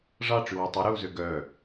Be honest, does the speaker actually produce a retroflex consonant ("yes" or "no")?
yes